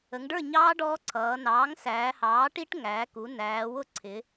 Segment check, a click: present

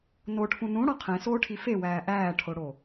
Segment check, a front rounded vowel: absent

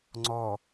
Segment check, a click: present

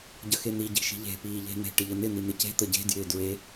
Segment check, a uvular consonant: absent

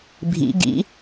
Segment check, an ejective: absent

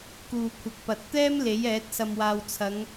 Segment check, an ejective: absent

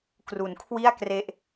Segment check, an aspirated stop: present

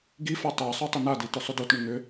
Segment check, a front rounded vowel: present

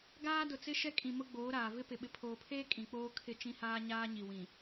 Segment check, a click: absent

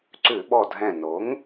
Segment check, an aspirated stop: absent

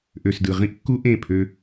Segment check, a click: absent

